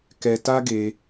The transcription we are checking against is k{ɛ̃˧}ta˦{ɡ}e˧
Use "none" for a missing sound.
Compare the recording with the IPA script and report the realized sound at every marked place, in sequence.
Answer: ɛ˧, ɡ

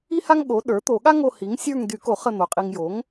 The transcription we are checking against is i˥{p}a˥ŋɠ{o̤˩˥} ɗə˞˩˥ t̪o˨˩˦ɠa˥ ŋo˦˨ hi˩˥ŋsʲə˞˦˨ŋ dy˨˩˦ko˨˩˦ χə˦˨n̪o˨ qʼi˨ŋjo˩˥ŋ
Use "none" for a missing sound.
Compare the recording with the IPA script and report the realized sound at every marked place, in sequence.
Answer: h, o˩˥

